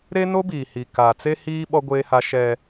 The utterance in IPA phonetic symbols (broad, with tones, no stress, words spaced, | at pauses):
ɾe˦no˦biː˨hi˨ kaː˨t͡se˦hiː˦ ɓɔ˦ɡʷeː˦ha˦ ʃɛ˦